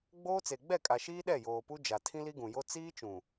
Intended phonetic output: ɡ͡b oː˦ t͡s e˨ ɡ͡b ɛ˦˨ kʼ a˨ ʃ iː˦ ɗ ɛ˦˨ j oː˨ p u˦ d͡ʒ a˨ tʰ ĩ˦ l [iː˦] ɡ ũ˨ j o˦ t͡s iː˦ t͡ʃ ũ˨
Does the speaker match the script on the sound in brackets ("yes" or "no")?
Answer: no